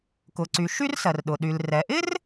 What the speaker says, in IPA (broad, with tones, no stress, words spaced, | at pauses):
kʊ˩ǀy˩ ʃy˥rsɜ˩rɗʊ˩ɗy˩l rɛ˩ʔɪ˥r